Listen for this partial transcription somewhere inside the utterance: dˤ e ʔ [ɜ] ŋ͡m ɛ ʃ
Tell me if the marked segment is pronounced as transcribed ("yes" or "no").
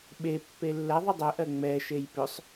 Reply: yes